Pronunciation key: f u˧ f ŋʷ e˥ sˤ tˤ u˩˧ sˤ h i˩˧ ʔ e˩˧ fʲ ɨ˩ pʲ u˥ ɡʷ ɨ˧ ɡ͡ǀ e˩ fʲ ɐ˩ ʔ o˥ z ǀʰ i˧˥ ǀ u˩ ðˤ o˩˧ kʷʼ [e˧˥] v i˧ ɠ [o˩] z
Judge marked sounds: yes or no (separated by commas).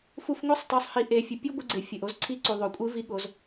no, no